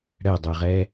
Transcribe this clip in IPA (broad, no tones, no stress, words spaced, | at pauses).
ɽɛdˤɤʁɛ